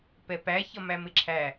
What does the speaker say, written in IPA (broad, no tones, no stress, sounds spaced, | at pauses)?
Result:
p ɛ p æ ç ʌ m æ m ɪ ǁʰ æ